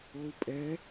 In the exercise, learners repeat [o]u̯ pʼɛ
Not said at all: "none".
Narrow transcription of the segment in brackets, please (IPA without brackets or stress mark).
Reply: o